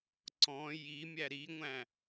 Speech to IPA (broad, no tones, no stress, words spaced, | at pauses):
ǀɔ̃ jimʲæ ɾiŋʷæ̃